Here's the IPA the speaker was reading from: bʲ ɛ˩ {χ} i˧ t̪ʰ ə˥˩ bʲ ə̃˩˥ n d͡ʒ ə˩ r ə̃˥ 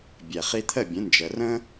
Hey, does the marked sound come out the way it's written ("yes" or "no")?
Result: yes